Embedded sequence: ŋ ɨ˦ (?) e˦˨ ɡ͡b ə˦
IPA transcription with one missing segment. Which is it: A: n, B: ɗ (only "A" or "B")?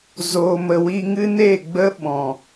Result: A